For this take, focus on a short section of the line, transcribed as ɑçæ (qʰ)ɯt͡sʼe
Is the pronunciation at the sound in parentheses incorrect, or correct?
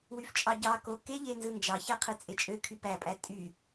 correct